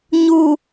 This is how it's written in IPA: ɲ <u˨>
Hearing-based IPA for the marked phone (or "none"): u˨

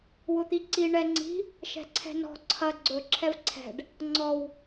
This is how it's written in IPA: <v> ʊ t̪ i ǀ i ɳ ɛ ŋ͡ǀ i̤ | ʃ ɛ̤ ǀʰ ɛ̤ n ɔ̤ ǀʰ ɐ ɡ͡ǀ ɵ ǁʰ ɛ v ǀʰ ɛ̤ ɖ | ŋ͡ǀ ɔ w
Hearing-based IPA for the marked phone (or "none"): w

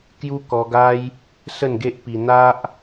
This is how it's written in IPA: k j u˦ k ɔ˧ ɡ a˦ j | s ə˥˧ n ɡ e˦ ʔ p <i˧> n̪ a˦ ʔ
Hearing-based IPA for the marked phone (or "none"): i˧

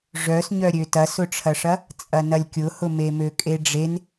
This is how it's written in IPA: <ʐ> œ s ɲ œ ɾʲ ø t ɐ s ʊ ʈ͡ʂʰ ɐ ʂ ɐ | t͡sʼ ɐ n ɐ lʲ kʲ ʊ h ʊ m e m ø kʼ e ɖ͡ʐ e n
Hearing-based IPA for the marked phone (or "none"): ʐ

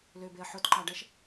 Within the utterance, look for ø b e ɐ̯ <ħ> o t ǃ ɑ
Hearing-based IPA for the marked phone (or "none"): ħ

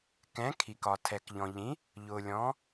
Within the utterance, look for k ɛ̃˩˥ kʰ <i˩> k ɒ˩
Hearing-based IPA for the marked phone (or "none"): i˩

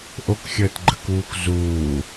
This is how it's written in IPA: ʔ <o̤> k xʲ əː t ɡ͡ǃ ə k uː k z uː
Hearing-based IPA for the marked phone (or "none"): o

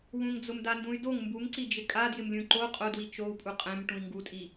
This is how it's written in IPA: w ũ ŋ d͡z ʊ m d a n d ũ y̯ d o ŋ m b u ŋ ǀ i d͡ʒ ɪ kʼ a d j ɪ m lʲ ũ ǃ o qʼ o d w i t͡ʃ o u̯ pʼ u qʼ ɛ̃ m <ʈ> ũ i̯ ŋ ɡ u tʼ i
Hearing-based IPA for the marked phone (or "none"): ʈ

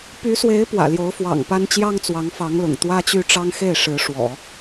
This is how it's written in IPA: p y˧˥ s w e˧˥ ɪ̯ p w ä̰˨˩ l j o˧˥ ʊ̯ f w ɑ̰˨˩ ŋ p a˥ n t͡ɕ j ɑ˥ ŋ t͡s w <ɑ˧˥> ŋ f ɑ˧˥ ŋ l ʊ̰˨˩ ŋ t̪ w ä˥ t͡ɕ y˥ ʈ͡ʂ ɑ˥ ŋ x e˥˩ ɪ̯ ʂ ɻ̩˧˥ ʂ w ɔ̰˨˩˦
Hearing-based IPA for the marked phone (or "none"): ɑ˧˥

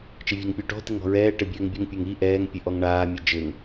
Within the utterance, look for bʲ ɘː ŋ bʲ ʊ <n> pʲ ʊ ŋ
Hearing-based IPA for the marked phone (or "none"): ŋ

